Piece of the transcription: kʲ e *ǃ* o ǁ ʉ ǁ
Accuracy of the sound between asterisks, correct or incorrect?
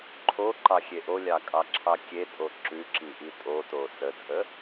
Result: incorrect